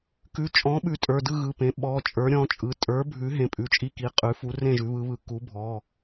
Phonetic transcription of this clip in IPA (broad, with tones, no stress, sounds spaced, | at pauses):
k ʉ˩˧˩ t͡ʃʼ ɔ̃˩˥ ɓ ʉ˩˥ tʼ ə˞˩˧˩ d ɯ˥˨ ɣ ɯ˩˧˩ p ẽ˩˥ ɓ ɔ˩˧˩ t͡ʃʼ ə˞˩˥ ɾʲ ɔ̃˩˧˩ t͡ʃʼ ɯ˩˧˩ tʼ ə˞˩˥ bʱ ʉ˩˥ ɦ ẽ˩˧˩ pʼ ʉ˩˧˩ t͡ʃʼ i˥˨ k i˩˧˩ qʼ ʉ˩˥ f u˩˥ r ẽ˥˨ ʒ ʉ˩˥ β ɯ˩˥ β ɯ˩˥ k u˩˥ bʱ ɔ˩˧˩